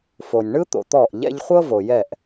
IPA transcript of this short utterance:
f o˨ nʲ ɳ ɯ˦ t̪ o̰˨ t̪ ɔ˦˨ ʔ ʎ ɛ̰˦ ʎ χʷ ɤ˦ v o˨ j ɛ˦˨ ʔ

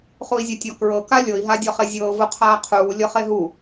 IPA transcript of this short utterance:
χ u i̯ zʲ a tʲ ɒ k ɹ ɤ k a lʲ ɤ i̯ ɦ a dʲ ɒ χ e zʲ ɤː v u qʰ aː qʰ uː lʲ ɤ χ e ɦ u

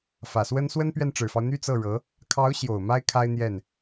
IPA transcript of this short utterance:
f ä˨˩ s w ə˥ n s w ə˥ n p ɥ ɛ˥˩ n ʈ͡ʂ ɻ̩˨˩ f ɑ˦ ʊ̯ n̪ y˥ t͡s ɤ˥˩ ɻ ɤ˧˥ | kʰ ɑ˧˥ ʊ̯ ɕ j o˨˩ ʊ̯ m a˥ ɪ̯ kʰ a˥ ɪ̯ n̪ j ɛ˥˩ n

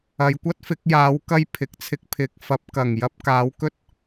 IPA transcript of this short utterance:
ɐ˨˧ j kʷ ɐ˥ t̚ f ɪ˨˥ k̚ j aː˨˥ w k ɐ˥ j pʰ ɪ˨ k̚ t͡sʰ ɪ˧ k̚ pʰ ɪ˨˥ k̚ f ɐ˨˥ p̚ k ɐ˨˩ ŋ j ɐ˧ p̚ k aː˨˥ w k ɵ˥ t̚

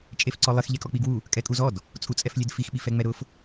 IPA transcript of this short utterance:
t͡ʃʼ e f ǀ ɔ lˠ ɪ x ʎ ɛ kʼ ɔ k͡p i ɡ w u | kʼ ɛ kʼ u z ɔ d | t͡sʼ u t͡sʼ ɛ f lʲ e d f i x ɓ i f ɛ ŋ͡m ɛ ɾ ʊ f

